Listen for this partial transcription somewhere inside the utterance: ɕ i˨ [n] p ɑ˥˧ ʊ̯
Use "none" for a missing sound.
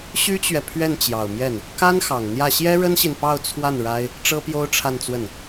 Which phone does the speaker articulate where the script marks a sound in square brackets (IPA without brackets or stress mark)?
n